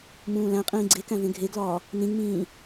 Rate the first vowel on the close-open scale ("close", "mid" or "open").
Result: close